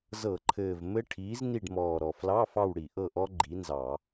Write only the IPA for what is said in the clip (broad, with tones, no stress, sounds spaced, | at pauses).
z ɤ˧˩˧ ǃʰ ɘː˨˩ v m ɘ˦˥ ʈʰ iː˨˥ z n i˦˨ ɖ m ɔː˨˩ ɾ ɔ˨˩ f l ɑ˧˥˧ f ɑ˦˨ w ɽ i˧˩˧ ʔ ɤ˦˨ ʔ ɔ˦˥ ɡ͡ǃ i˨˥ n z ɑ˧˩˧